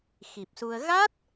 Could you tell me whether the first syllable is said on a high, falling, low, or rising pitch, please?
low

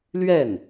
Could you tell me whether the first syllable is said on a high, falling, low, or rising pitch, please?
falling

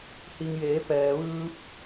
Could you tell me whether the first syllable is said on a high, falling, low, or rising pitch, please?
low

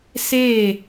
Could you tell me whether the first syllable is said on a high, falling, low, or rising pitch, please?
falling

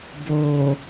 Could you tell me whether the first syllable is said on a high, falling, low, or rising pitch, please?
low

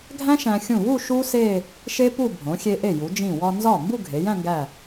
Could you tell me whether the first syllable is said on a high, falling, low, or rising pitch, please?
high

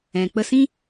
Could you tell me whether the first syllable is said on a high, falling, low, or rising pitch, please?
low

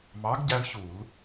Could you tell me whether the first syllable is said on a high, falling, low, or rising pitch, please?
rising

